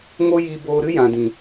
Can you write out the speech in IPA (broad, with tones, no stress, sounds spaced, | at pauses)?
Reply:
ŋ o˦ j i˧ b oː˧ ɾ ɨ˦ j ã˨ d ĩ˨